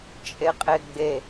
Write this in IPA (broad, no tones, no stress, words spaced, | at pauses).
t͡ʃʼeqʼeɡ͡be